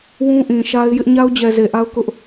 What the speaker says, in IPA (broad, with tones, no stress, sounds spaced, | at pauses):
w ũ˦ ʔ ĩ˨ ʃ a˦ ɪ̯ j ɪ˦ ʔ ɲ a˦ ʊ̯ d͡ʑ ɛ˨ z e˨ ʔ a˦ ʊ̯ k ʊ˦ ʔ